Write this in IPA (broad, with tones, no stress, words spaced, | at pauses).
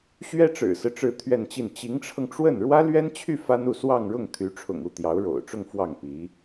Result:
ɕɥɛ˥ʈ͡ʂɻ̩˨˩sɹ̩˦ ʈ͡ʂɻ̩˥˧t̪ʰɥɛ˥˧nt͡ɕi˥˩n t͡ɕi˧˥ŋʈ͡ʂʰɤ˧ŋʈ͡ʂwə˥˩n ɻwä˥lɥɛ˥nt͡ɕʰy˥˩ fa˥nu˥˧ swɑ˥˧ŋɻʊ˥˩ŋ t̪ʰy˧˥ʈ͡ʂʰʊ̰˨˩ŋu˥˩ t̪jɑ˧˥ʊ̯ɻo̰˨˩ʊ̯ʈ͡ʂʊ˥˧ŋ fwɑ˥˩ŋpi˧˥